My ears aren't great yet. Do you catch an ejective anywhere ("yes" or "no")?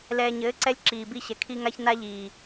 no